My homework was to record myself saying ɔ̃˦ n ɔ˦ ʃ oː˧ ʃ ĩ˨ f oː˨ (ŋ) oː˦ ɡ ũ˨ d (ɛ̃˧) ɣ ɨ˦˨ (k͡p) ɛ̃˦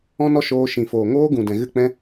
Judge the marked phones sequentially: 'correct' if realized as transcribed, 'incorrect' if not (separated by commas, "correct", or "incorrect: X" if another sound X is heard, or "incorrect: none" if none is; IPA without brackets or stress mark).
correct, incorrect: ɛ̃˨, correct